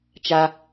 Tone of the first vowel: high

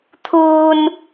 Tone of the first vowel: high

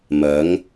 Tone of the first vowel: rising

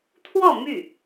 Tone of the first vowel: falling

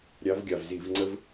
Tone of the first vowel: rising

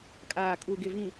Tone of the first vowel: low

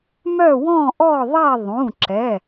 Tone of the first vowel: falling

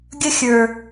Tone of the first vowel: high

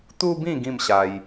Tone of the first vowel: high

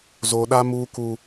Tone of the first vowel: high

